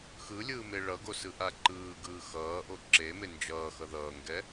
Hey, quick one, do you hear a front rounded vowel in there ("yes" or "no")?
no